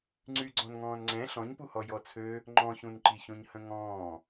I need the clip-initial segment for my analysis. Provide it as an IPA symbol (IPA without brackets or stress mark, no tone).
ŋ͡ǀ